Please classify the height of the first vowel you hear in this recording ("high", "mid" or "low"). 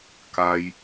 low